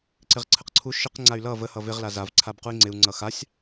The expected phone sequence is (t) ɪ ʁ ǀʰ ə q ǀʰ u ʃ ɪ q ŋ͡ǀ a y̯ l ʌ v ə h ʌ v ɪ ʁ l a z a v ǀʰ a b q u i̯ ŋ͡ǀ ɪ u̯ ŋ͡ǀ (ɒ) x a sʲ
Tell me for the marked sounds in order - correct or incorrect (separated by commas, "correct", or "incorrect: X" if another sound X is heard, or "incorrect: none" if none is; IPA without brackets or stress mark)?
incorrect: ǀ, incorrect: ʌ